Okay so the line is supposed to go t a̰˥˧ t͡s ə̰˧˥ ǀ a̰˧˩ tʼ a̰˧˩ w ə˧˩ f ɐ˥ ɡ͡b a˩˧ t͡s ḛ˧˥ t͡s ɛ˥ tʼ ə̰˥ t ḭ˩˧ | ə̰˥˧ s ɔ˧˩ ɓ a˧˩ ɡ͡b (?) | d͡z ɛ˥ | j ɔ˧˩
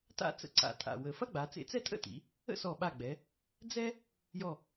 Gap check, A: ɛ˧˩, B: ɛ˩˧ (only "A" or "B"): B